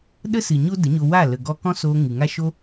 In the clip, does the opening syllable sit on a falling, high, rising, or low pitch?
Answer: high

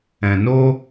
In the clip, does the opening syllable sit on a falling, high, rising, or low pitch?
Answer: low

